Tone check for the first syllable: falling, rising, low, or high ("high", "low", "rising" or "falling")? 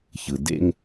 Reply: low